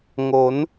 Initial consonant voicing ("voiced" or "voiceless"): voiced